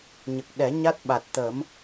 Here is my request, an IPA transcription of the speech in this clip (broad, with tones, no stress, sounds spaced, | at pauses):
ɲ ə˨˩ k̚ ɗ ɛ˨˩˦ ɲ a˦˥ t̚ ɓ a˨˩ t̚ t̪ ə˨˩˦ m